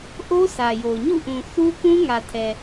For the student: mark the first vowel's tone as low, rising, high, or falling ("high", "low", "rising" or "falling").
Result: high